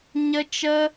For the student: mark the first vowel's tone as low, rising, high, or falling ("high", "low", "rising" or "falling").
high